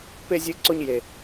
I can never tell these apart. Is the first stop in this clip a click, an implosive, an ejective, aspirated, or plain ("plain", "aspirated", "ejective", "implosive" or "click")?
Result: plain